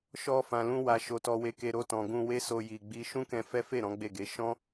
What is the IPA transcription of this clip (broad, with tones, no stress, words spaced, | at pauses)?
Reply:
ʃɔ˧fã˨lũ˧ wa˨ʃo˨ tɔ˧we˧ke˧ ɾo˧tɔ̃˨ ɡũ˧we˦so˧ ji˨ɡ͡bi˧ ʃũ˦kɛ̃˧fɛ˦fe˦˨ ɾɔ̃˨˦ɡ͡be˦˨ɡe˨˦ ʃɔ̃˦